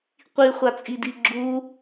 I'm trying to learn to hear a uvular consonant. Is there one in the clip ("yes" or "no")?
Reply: yes